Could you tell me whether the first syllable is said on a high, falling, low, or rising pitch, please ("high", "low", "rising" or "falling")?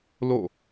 falling